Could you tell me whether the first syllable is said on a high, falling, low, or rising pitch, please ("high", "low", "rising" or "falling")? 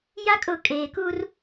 high